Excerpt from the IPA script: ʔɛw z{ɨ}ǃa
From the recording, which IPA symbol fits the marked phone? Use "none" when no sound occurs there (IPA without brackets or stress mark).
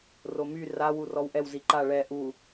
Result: i